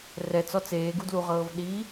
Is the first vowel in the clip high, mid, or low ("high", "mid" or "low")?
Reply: mid